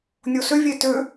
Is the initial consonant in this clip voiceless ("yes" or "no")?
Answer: no